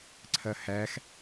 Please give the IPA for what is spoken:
ǀʰɐhæx

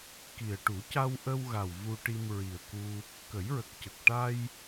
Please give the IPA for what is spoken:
ki˨˩ə̯ ʈu˨˩˦ca˧wʔə˧wɣa˨˩w vu˧ʈi˧mɹi˨˩ə̯ku˧ | kə˨˩˦jɹə˨˩k̚cə˨˩k̚ ʈa˧j

